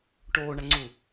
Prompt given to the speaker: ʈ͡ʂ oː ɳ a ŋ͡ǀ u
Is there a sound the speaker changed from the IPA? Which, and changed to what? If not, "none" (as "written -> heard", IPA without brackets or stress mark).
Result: ʈ͡ʂ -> ʈ